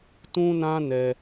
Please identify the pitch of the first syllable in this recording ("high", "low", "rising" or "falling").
high